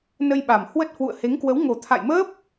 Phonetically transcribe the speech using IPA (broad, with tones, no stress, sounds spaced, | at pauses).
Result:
n ə˧ j ɓ a˨˩ m h w ə˦˥ t̚ h w ṵ˧˨ ə̯ h e˨˦ ŋ k w ə˨˦ w ŋ o˨˩ t̪ʰ a̰˧˨ j m əː˦˥ p̚